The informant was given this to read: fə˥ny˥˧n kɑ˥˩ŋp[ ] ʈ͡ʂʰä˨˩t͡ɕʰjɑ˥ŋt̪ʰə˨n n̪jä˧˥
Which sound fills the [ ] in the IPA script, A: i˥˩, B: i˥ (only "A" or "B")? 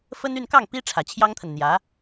B